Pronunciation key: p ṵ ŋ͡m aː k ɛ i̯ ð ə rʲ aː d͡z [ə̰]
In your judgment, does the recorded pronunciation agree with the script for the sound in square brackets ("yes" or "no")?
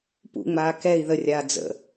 yes